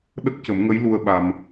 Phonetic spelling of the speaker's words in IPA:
ɗ ə˦˥ k̚ c ə˨˩˦ m ŋ ə˧˥ j l u˧ ə̯ ɓ a˧ m

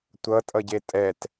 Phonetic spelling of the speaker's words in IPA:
tʷ ʌ tʼ ʌ ɟ e tʼ ɛ t

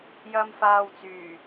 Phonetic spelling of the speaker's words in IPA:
j ɐ˧ m f aː˧ w t͡s yː˨˩

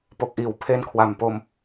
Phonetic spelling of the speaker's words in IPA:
p o˨˩ k̚ ʔ iː˩˦ w pʰ e˦˥ n kʰ w a˨˩ m p o˧ m

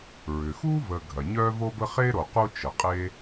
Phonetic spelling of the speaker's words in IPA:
ɹ ʏ˩ x uː˥ v ə˨ ɡʱ ɐ˩ ɲ œː˥ v o˥ b ə˥ χ e˥ ɾ o˩ q u˦ t͡ʃ ə˩ qʼ e˦

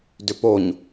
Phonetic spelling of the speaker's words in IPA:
d ʏ p o ɲ

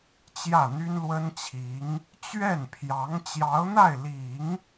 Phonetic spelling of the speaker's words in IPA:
t͡ɕ j ä˥˩ n̪ y˥ n l w ə˥ n t͡ɕʰ i˧˥ ŋ | t͡ɕ ɥ ɛ˥˩ n pʰ j ɑ˧˥ ŋ t͡ɕ j ɑ˧˥ ʊ̯ n̪ a˥˩ ɪ̯ l i˨˩˦ ŋ

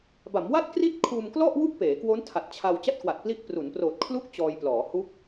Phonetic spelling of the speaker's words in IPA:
b a˩˦ m w a˥˩ t̚ k r i˥˩ t̚ kʰ uː˧ m k l ɔ˥˩ ʔ w u˥˩ k̚ p eː˩˦ k w o˦˥ n tʰ a˨˩ t̚ t͡ɕʰ a˧ w t͡ɕ a˥˩ t̚ k w a˨˩ t̚ p l i˦˥ ʔ p r u˩˦ n p r oː˨˩ t̚ kʰ l u˥˩ k̚ t͡ɕ ɔː˧ j p l ɔː˩˦ h u˦˥ k̚

